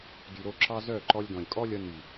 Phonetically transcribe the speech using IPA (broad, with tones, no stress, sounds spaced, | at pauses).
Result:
d y˨ ɾ o˦˨ ǁ ɑ˦ z œ˦˨ ǃ ɔ˧ lʲ d ɔ̃˨ lʲ kʼ ɔ˦ lʲ ʌ˧ n y˨